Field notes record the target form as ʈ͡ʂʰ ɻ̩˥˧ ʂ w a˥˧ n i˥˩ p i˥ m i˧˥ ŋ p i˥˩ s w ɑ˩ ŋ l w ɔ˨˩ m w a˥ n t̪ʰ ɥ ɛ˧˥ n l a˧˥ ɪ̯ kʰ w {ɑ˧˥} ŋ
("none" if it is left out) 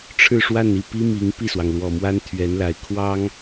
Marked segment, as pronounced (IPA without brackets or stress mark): ɑ˥